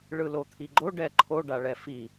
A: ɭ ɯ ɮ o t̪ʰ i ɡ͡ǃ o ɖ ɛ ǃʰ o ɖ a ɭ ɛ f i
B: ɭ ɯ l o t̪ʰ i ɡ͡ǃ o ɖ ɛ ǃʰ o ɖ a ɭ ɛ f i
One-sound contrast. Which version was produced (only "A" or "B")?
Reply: B